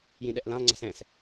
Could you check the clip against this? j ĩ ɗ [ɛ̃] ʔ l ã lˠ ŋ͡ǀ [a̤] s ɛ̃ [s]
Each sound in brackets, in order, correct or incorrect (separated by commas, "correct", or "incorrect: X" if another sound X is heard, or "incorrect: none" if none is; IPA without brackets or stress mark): incorrect: ɛ, correct, correct